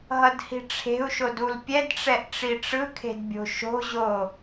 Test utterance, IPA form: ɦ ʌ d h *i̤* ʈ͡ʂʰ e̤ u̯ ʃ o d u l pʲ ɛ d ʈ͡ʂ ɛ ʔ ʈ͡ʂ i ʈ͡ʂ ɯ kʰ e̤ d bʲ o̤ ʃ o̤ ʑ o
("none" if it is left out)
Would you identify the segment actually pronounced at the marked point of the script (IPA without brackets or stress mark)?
i̤